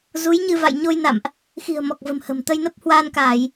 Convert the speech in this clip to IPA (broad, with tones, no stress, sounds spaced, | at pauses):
z u˨˦ j ɲ ɨ˧ v a̰˧˨ j ɲ o˧ j n a̰˧˨ m ʔ | x i̤˨˩ ə̯ m ɔ˨˩ k̚ v ə̤˨˩ m h ə̤˨˩ m t̪ ə˧ j n ə˦˥ p̚ h w aː˧ n k aː˧˩˨ j